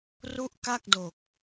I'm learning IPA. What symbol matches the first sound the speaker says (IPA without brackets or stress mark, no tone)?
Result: r